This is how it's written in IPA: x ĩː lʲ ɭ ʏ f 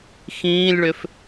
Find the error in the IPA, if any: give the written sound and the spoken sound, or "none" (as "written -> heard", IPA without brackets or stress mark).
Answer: none